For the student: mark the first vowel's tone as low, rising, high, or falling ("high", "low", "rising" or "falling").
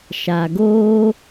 low